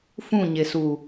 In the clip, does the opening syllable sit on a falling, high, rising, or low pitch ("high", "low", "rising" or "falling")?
falling